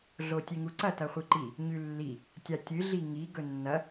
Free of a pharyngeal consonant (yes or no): yes